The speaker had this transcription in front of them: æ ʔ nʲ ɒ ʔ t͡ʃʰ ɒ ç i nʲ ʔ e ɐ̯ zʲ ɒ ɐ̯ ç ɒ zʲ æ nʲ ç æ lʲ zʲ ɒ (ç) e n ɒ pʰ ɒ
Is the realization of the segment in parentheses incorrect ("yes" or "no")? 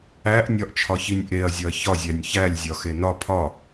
yes